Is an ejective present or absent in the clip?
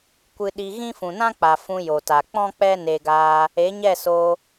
absent